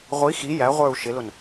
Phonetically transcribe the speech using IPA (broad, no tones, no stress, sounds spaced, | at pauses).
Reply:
ʁʷ i x i j æ ʁʷ ə˞ u̯ ʃ ɪ l ʊ n